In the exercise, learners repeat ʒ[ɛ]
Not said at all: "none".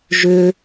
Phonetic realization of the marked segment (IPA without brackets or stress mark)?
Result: ʏ